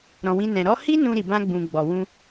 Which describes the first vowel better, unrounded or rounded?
rounded